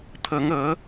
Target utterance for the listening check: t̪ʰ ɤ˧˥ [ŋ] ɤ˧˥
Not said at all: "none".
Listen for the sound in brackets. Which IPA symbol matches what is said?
ŋ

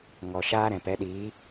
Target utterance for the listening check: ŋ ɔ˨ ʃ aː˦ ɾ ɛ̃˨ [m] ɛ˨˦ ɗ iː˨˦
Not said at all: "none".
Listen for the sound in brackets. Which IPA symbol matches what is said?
p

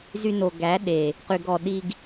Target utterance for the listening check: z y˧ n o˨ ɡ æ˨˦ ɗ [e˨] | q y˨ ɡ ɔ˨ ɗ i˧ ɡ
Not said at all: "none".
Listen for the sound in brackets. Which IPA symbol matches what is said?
e˨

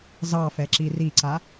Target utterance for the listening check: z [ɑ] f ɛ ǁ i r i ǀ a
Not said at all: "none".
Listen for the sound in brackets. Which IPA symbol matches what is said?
ɑ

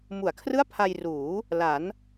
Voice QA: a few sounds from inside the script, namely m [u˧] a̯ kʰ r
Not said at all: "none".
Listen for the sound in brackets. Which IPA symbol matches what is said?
u˩˦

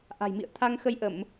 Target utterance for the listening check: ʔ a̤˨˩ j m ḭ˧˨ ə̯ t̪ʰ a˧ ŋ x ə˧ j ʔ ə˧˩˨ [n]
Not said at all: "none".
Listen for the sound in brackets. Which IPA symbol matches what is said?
m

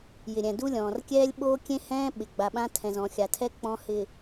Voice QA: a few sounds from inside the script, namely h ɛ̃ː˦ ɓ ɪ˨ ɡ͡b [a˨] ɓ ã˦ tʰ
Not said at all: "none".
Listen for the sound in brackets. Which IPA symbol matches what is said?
a˨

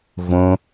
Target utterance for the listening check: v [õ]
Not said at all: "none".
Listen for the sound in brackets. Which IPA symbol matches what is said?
õ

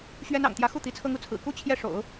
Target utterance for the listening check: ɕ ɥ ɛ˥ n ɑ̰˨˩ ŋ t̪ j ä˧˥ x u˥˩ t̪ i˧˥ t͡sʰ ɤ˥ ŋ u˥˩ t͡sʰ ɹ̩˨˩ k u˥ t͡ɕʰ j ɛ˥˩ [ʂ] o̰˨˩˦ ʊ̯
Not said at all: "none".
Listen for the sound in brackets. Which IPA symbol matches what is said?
ʂ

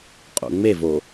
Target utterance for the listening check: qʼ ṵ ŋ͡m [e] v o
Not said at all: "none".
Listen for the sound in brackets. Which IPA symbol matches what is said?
e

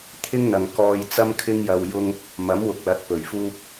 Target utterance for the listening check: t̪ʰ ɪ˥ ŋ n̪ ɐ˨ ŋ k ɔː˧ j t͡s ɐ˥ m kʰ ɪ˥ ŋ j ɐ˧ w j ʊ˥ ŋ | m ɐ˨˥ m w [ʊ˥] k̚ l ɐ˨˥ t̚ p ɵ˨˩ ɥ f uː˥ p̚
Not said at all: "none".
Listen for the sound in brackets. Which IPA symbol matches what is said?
ʊ˨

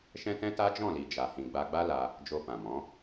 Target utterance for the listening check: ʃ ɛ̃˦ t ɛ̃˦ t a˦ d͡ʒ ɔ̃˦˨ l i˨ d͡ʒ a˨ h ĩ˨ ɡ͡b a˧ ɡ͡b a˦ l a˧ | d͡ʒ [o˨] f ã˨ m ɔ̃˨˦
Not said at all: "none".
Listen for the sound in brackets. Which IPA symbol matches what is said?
o˧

